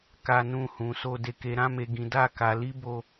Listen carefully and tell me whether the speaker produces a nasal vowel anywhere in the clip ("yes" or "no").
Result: yes